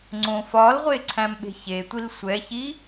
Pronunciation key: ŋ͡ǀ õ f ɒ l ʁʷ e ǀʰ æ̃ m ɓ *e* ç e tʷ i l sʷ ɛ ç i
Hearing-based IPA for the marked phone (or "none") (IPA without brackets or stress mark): e̤